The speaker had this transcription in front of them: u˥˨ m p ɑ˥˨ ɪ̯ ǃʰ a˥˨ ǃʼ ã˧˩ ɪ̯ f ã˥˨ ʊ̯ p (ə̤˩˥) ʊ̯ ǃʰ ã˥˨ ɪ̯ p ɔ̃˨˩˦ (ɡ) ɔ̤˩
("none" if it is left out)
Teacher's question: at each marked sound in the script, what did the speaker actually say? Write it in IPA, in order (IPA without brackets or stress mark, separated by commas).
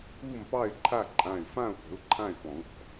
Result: ə̤˩˥, ɡ